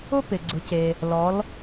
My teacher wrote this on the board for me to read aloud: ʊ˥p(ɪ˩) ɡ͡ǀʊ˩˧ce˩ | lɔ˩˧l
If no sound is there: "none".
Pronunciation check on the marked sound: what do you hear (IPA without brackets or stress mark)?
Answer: ɪ˩